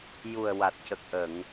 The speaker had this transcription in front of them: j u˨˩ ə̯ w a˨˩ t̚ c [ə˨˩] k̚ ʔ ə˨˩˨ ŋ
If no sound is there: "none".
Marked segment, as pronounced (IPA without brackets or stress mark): ə˨˩